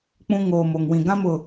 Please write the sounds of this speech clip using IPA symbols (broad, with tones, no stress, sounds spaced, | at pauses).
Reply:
k͡p ũ˦ ŋ oː˨ m o˨ ŋ w ĩ˨ ɡ ã˦ m ʊ˨